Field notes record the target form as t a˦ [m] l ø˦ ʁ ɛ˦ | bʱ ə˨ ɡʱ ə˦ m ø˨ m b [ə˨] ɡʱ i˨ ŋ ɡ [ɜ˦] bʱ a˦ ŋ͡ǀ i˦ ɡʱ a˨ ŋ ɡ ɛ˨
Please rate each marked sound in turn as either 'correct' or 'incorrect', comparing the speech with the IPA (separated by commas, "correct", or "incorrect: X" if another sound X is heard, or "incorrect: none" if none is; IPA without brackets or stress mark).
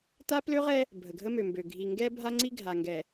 incorrect: p, incorrect: ø˨, incorrect: ɛ˦